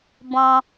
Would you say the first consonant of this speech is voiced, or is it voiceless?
voiced